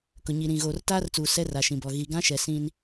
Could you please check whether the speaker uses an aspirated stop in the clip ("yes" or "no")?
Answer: no